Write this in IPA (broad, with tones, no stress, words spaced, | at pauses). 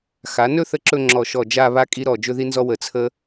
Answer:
xa˩˧nɵ˥˧θə˧ ǁɵ˥˧ ŋ͡ǁɔ˧˩ʃɔ˧˩ d͡ʒa˥˧βa˥kʼi˥ ɾɔ˧˩d͡ʒɵ˥ði˥nzɔ˥ wə˧˩t͡sʰə˥